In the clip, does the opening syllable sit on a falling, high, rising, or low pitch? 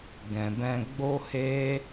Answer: low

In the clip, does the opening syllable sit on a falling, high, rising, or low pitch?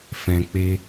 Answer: low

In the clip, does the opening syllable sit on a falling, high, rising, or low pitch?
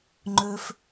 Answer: high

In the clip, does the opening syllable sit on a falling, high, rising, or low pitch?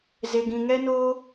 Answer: low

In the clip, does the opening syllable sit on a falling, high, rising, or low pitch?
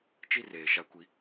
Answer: high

